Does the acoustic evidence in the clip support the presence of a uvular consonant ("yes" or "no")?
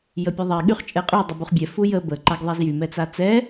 yes